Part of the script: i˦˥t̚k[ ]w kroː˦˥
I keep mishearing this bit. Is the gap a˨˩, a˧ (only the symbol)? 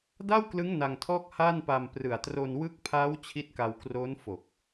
a˧